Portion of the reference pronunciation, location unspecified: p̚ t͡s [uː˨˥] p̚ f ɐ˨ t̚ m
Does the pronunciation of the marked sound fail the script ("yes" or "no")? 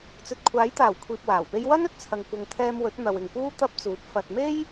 no